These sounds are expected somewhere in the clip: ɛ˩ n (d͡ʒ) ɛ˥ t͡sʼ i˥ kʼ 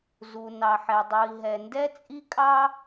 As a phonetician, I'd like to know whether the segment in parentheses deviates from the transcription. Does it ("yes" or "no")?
yes